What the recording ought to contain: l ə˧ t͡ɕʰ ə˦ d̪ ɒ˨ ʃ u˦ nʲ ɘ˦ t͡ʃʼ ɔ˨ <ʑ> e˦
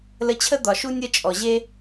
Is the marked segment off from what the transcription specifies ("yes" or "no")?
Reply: no